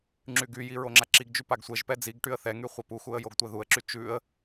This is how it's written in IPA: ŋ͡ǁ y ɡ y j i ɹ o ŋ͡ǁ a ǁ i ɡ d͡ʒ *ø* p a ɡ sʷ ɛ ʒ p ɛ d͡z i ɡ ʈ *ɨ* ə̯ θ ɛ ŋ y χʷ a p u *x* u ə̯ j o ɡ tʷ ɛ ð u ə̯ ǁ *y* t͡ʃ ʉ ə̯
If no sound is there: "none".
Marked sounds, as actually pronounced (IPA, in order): y, y, x, y

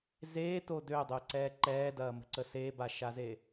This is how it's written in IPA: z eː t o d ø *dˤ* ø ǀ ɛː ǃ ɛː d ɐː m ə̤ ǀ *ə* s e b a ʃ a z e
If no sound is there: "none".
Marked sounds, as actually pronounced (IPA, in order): dˤ, ə

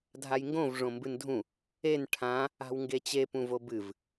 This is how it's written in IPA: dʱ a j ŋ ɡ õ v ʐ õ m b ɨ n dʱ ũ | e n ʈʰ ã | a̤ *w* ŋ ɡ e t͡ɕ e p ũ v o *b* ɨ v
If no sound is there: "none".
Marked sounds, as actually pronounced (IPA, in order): w, b

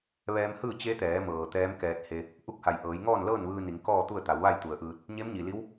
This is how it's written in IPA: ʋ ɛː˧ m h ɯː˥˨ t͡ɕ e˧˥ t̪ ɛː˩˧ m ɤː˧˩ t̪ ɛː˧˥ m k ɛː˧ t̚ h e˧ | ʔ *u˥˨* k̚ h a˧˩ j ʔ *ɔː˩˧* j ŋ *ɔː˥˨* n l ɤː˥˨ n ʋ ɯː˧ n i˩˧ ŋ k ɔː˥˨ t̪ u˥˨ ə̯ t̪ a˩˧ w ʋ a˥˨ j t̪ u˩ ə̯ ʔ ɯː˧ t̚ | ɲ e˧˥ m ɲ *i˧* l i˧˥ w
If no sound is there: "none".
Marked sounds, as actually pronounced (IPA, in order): u˥˨, ɤː˩˧, ɔː˥˨, i˩

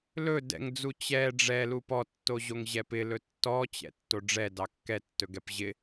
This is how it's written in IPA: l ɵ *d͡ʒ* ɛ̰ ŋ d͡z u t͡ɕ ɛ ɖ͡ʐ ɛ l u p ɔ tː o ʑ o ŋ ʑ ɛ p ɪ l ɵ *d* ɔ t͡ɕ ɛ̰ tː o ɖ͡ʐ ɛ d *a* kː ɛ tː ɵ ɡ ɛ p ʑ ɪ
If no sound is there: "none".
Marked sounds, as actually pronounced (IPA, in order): d, tː, ɑ

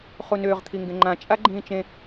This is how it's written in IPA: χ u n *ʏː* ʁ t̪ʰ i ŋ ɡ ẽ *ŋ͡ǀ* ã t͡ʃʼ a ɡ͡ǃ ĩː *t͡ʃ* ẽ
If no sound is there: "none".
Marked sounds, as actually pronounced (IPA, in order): ʏː, ŋ͡ǃ, t͡ʃ

